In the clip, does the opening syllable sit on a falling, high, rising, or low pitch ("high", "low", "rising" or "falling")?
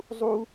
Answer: high